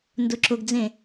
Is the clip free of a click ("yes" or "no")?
no